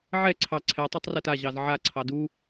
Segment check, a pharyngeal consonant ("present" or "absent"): present